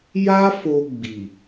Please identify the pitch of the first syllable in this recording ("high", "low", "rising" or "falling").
high